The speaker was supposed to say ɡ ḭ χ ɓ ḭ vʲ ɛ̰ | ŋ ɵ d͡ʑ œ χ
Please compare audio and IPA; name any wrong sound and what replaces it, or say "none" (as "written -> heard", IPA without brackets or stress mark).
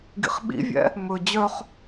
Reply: ŋ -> m